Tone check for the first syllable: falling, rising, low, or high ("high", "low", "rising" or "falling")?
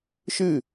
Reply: falling